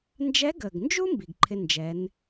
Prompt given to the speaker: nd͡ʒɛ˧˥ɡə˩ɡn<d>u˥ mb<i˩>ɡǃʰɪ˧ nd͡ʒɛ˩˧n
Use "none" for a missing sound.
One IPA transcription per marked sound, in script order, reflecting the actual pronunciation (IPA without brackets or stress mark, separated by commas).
d͡ʒ, i˩